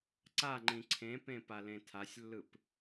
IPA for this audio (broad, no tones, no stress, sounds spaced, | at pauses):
ǀ a ŋ͡ǃ ĩ ǀʰ ẽ p ẽ p a l ẽ tʰ a sʲ lː ɯ p